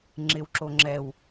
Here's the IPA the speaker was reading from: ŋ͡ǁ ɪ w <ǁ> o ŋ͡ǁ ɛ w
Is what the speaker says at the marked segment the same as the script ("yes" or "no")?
yes